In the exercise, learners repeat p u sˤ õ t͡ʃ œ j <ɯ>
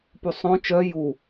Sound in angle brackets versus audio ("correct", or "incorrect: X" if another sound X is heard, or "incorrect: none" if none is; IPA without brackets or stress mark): incorrect: u